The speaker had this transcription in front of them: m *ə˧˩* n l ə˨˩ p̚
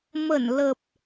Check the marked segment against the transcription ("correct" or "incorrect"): correct